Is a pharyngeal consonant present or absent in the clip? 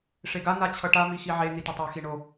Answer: present